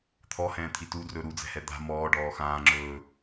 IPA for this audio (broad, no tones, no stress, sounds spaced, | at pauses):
t̪ʰ ɔ h ɛ̃ː t̪ʰ i t u d r ɵ ɾ u d͡z ɛ̤ h ɛ d̪ a̤ m ɔː ɖ ɔː x ãː ŋ͡ǁ ɵː